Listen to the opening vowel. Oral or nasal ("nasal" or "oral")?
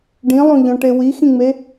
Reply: nasal